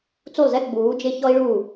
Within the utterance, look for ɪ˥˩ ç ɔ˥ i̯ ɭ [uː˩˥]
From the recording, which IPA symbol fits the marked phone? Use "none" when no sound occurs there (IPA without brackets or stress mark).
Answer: uː˥˩